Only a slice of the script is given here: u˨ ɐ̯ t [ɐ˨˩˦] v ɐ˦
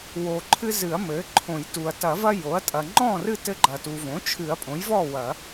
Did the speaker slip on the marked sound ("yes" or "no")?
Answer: no